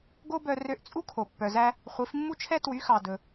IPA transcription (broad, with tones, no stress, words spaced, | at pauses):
ɡo˥bœ˧ rø˧ʔ t͡sʼu˥kʰo˩ pːœ˩zæ˧ | χʷi˩˥fmːu˥t͡ʃʰɛ˥ twy˩˥xɑ˩ dɵ˩